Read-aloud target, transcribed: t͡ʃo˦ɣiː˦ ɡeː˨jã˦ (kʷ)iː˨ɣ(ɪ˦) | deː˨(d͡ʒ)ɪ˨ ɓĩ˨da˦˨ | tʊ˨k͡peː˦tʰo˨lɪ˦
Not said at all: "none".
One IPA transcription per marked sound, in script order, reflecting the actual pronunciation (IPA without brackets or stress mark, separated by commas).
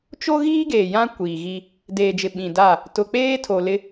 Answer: kʷ, i˦, d͡ʒ